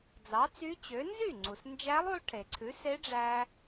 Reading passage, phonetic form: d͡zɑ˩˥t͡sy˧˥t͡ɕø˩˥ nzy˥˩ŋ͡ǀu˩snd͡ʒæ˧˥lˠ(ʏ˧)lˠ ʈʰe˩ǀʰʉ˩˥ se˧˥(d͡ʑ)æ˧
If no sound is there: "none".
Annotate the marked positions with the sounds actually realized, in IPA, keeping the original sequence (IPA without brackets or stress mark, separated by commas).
u˧, ɖ͡ʐ